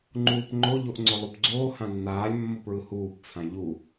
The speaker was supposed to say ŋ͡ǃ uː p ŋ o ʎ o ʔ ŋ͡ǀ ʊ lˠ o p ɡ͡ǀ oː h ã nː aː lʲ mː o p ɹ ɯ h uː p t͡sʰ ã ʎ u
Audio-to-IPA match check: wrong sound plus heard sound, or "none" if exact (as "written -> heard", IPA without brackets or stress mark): ŋ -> ŋ͡ǃ